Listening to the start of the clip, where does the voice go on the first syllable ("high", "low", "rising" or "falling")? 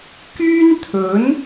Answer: high